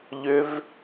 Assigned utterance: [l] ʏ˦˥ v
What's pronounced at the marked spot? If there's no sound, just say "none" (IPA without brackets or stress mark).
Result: ʎ